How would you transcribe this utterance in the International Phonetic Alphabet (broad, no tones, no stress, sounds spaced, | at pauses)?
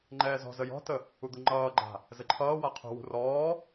ŋ͡ǃ ɛː z ɔ̤ z ə j ɔ̤ t ə | u d̪ u ŋ͡ǃ ʌː ɡ͡ǃ a̤ | z ɘ ǃʰ ʌː w a qʰ ṳ w ṳ r ɔː